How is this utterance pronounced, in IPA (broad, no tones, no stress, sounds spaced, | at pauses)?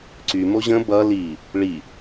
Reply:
ǀ y m o ʑ ə̃ b ʌ l i | ɭ i